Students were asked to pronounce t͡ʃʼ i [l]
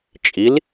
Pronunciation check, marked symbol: correct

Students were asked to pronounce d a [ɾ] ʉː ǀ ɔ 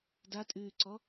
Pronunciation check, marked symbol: incorrect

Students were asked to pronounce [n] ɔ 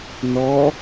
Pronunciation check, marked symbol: correct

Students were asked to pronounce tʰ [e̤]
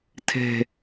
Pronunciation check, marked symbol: correct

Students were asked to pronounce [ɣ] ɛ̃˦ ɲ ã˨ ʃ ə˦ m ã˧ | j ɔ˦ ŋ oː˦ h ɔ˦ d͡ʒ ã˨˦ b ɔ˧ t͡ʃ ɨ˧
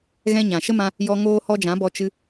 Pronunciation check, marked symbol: correct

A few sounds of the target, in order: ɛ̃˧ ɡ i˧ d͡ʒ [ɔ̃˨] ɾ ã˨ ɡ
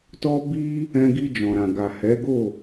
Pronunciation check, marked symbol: correct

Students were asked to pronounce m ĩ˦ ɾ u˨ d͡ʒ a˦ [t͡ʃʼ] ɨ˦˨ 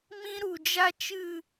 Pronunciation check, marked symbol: incorrect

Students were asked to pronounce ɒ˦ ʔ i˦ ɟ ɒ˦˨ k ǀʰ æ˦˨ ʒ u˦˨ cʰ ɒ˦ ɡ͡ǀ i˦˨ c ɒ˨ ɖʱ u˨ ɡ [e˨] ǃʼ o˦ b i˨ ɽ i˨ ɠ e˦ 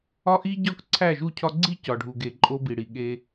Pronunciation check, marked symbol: correct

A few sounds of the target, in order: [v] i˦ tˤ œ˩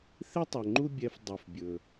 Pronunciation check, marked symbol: incorrect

